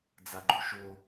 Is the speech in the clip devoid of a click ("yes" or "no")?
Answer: no